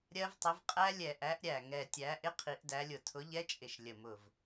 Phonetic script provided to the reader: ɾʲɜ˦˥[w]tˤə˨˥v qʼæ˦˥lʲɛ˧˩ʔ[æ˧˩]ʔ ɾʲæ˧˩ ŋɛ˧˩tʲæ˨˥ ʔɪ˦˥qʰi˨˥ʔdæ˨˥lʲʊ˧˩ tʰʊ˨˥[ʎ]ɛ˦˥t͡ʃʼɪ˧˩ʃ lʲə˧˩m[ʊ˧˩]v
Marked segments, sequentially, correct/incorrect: incorrect, incorrect, correct, correct

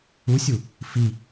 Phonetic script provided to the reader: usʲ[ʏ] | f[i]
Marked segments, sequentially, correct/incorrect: incorrect, correct

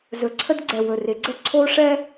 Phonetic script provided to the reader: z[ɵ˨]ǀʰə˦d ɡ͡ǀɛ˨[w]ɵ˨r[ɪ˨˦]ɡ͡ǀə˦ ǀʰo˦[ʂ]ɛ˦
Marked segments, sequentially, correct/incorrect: incorrect, correct, correct, correct

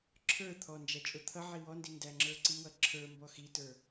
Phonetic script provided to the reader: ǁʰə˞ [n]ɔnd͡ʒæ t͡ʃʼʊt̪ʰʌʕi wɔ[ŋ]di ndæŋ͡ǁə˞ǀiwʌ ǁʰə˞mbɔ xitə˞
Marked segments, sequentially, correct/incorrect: incorrect, incorrect

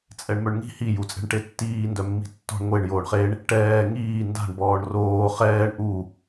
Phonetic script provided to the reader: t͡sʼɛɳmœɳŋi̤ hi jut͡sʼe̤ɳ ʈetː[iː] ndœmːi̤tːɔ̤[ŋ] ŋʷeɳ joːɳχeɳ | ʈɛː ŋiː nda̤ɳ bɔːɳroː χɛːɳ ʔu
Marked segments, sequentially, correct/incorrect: correct, incorrect

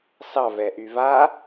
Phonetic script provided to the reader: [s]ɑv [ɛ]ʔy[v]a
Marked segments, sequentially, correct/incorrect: correct, correct, correct

